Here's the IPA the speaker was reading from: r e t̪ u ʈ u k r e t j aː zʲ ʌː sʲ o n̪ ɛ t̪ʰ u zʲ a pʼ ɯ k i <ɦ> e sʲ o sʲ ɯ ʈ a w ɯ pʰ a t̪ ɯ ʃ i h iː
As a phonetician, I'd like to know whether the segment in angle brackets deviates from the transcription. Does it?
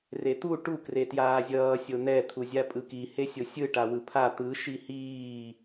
yes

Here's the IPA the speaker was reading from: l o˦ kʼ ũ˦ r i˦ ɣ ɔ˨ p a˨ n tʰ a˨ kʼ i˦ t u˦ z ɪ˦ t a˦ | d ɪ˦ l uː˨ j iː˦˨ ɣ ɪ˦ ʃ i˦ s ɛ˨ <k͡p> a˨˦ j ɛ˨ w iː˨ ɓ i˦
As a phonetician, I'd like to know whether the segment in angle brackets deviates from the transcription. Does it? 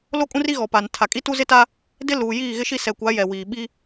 yes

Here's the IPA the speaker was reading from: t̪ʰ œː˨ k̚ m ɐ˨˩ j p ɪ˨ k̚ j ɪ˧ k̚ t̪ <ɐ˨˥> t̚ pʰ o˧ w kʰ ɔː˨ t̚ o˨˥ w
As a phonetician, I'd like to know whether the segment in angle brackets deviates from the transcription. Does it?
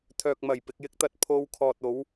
yes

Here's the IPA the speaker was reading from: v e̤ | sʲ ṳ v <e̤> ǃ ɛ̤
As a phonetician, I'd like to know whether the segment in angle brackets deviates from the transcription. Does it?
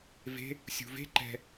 no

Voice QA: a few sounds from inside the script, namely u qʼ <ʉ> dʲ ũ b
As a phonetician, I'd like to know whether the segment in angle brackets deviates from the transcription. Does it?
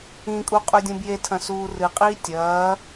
no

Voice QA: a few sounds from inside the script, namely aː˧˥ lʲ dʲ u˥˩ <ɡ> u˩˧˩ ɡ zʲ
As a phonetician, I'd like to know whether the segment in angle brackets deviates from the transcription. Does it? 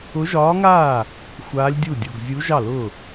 yes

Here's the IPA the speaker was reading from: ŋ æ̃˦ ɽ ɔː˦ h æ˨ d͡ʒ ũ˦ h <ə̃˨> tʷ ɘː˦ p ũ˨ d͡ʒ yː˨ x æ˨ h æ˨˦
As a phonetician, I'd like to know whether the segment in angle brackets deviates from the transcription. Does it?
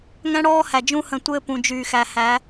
no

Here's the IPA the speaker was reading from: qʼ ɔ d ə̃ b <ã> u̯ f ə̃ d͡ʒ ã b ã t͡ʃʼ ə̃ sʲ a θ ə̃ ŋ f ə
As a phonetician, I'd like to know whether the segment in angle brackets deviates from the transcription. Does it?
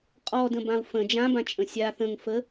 no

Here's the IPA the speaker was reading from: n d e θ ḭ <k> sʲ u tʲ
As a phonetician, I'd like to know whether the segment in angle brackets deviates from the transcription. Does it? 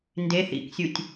no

